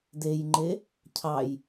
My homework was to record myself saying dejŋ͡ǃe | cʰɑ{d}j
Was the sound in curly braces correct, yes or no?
no